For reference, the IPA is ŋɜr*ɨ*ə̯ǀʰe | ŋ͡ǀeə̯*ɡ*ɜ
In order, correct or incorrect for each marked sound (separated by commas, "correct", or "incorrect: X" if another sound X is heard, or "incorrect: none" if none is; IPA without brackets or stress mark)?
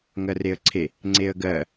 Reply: incorrect: e, correct